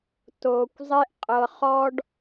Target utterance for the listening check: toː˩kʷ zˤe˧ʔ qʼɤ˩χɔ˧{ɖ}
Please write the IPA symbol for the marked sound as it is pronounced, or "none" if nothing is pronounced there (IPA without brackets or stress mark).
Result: ɖ